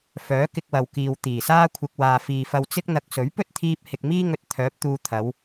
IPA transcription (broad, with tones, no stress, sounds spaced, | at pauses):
f œː˨˥ k ɪ˧ k̚ w ɐ˨ w k iː˨ w t̪ iː˨˩ s aː˥ kʷʰ ɪ˧ k̚ w aː˨ f iː˨ f ɐ˧ w t͡s ɪ˥ k̚ n̪ ɐ˧ k̚ s ɵ˨˥ ɥ p ɵ˥ t̚ t̪ʰ iː˧ p̚ h ɪ˨ k̚ m iː˥ ŋ ɵ˧ t̚ t̪ʰ œː˨˥ p̚ t̪ uː˧ t̪ʰ ɐ˨˧ w